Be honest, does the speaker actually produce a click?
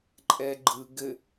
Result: yes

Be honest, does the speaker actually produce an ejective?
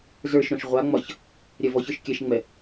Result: no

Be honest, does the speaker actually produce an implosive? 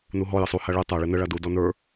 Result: no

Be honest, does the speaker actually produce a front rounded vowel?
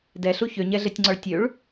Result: yes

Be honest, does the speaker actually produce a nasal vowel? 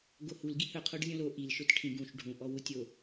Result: yes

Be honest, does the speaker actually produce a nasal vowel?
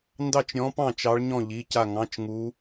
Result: yes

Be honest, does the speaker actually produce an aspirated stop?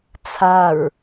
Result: yes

